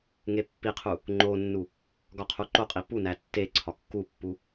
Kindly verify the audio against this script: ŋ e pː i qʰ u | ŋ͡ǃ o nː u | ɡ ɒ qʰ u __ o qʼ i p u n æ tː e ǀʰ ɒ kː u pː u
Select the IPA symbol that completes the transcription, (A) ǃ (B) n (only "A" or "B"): A